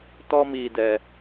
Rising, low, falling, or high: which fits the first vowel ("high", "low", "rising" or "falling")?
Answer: high